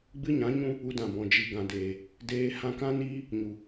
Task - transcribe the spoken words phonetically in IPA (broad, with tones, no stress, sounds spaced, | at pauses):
ɡ͡b ɨ˦ ɲ ã˨˦ ɲ ũ˦ | u˧ d ã˨ b ɔ̃˨ d͡ʒ i˨ ɡ ã˨ d eː˨ | d eː˧ h ã˧ k ã˦ n iː˦ | ɲ u˨